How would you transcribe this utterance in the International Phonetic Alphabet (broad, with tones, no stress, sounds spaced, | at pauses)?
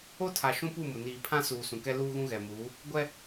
o˦ tʰ a˨ ʃ ũ˦ p u˦˨ m ʊ˨ n iː˨ pʰ ã˦ s uː˨ s ũ˨ k ɛ˦ l uː˦ ɣ ũ˦ ɣ ɛ˨ m uː˨˦ | ɡʷ ɛ˦